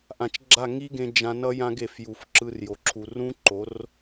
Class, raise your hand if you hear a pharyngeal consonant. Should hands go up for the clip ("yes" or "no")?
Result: no